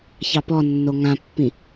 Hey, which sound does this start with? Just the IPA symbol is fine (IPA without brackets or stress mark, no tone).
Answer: ç